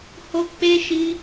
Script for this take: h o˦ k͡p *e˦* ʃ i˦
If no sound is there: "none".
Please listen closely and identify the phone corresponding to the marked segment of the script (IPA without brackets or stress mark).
e˦